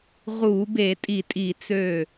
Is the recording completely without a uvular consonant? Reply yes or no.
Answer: no